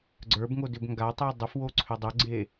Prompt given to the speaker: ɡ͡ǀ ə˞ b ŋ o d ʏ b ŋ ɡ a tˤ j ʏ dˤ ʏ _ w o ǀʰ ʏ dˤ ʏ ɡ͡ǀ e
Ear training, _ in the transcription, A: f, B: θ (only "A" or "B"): A